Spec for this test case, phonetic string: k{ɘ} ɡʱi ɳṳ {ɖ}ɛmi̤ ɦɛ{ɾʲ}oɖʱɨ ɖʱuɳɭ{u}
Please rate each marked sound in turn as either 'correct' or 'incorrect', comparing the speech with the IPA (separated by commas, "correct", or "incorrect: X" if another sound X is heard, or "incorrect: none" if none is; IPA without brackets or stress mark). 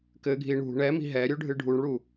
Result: correct, incorrect: ɳ, correct, correct